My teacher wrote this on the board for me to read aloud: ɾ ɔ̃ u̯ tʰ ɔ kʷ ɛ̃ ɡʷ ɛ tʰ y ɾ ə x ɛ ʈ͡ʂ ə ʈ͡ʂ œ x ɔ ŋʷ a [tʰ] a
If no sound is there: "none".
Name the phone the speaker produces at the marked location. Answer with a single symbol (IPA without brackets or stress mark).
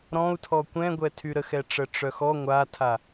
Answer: tʰ